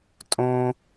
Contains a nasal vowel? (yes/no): yes